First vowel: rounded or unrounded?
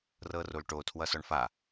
unrounded